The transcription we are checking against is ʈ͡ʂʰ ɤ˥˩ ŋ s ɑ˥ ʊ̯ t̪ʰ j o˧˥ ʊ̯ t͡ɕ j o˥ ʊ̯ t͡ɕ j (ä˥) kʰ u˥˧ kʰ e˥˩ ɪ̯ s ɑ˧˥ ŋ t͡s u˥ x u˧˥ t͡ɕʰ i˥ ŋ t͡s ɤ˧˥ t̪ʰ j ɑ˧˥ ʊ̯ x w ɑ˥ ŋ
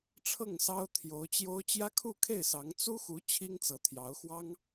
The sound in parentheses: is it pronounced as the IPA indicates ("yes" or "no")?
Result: yes